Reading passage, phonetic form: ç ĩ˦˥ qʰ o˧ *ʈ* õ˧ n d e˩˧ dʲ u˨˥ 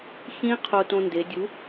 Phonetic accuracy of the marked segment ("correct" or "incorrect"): incorrect